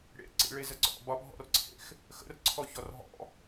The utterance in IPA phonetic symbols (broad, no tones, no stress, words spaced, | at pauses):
ɽḛ ǀḭɭezəǀɔ̰ bɒbʱɔ̰rǀʰḛx | xə̰rǀʰɔ çɔrɦɔ̰